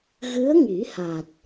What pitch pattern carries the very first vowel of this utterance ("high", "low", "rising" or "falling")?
rising